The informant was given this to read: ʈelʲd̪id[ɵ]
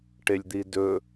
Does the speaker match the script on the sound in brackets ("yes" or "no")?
yes